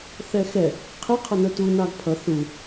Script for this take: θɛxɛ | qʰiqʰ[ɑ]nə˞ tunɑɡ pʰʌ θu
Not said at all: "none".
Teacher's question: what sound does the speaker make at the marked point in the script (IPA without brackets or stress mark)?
ʌ